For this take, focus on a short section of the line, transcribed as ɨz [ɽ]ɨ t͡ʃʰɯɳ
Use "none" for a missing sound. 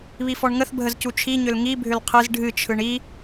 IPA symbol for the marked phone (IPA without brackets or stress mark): ɖʱ